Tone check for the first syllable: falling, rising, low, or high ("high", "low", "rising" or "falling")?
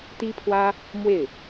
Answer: high